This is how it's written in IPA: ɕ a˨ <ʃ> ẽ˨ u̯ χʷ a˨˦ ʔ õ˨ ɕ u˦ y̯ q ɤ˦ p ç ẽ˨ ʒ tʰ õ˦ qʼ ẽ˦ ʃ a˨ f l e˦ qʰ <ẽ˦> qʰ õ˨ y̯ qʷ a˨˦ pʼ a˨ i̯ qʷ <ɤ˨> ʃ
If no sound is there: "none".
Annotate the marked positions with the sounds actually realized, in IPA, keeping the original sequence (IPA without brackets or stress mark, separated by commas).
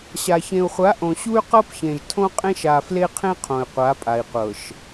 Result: ç, ẽ˦, ɤ˨